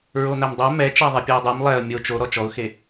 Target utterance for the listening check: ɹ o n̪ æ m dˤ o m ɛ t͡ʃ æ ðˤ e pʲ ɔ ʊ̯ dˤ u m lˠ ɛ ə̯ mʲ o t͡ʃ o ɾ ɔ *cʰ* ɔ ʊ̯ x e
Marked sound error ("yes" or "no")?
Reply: yes